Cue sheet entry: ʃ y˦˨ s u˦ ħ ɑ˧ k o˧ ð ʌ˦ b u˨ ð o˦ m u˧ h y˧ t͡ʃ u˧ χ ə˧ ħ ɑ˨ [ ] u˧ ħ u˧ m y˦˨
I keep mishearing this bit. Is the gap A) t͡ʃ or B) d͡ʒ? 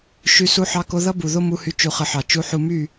A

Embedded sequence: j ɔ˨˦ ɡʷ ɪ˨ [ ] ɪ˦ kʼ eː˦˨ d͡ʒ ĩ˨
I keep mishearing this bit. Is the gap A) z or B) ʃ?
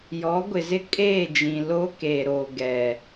A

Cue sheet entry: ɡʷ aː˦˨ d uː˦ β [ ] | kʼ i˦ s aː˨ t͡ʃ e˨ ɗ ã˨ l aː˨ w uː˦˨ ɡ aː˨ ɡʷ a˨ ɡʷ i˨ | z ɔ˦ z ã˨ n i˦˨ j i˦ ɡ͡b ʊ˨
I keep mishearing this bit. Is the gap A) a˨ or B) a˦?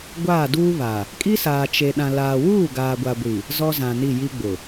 A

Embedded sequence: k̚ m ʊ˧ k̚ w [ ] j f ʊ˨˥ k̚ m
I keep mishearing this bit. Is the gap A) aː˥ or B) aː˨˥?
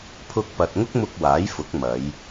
B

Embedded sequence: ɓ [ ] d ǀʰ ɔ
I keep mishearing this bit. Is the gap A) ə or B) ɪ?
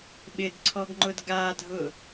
B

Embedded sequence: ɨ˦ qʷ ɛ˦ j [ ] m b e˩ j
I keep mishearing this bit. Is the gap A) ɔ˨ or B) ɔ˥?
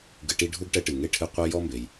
B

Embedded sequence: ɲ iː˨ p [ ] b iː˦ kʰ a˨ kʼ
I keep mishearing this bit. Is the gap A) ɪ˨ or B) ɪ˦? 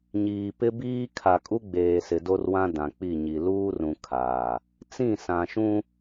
B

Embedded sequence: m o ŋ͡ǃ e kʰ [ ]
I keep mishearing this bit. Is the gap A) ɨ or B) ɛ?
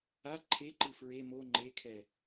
B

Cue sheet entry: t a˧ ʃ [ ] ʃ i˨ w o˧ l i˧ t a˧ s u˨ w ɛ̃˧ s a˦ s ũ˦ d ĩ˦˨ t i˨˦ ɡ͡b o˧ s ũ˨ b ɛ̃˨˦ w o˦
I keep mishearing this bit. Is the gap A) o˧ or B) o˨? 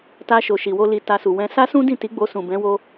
B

